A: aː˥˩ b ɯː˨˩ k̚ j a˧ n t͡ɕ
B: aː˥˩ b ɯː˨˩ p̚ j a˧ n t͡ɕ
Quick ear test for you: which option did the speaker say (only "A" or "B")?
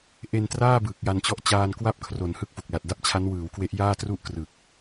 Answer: A